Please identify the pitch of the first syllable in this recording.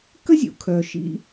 high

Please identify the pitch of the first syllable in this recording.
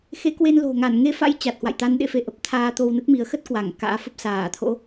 rising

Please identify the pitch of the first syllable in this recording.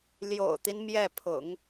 low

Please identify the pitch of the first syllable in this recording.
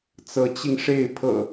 rising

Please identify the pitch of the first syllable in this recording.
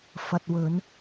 low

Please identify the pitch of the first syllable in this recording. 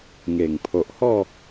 low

